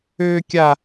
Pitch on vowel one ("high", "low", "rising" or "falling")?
high